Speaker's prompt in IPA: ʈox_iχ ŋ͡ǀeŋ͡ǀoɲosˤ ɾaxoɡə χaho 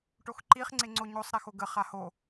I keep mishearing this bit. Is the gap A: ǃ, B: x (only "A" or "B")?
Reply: A